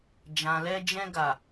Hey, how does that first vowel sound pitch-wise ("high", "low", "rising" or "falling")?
low